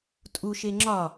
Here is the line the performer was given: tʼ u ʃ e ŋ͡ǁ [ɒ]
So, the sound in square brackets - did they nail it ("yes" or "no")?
yes